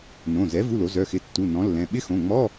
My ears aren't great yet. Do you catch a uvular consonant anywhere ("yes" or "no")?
no